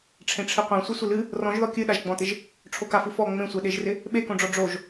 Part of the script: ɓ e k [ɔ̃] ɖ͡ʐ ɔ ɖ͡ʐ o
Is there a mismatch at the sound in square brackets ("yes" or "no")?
yes